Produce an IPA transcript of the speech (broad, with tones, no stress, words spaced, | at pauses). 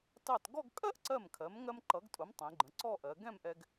tɑ˧˩tɡɔ˥˧ɡ kʼɜ˥ʔǀɜ˧˩mkʰɜ˩˧mŋɜ˧m ǃʌ˩˧ɡtʼʊ˩˧m tˤɛ̃˩˧ɡ͡ǃə̃˩˧ǀɔ˥˧ʔɜ˩˧ ɡɛ̃˥˧mʔɛ˧ɡ